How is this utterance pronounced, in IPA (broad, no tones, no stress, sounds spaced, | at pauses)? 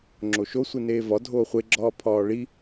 ŋ͡ǁ o ʃ o sʷ i n eː v ɒ dʱ oː χʷ e ɡ͡ǁ ɒː pʰ ɒː ɭ i